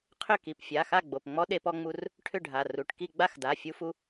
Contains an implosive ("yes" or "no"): yes